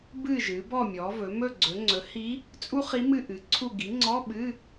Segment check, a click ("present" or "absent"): present